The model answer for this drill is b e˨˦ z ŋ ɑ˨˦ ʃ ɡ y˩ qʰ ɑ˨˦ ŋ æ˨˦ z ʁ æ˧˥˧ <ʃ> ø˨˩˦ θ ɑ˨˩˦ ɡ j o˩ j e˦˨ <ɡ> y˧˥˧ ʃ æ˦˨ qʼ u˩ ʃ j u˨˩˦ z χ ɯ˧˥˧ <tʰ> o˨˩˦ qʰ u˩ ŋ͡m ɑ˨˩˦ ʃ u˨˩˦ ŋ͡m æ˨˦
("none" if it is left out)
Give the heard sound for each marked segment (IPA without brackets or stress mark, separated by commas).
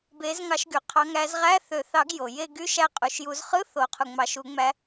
θ, ɡ, θ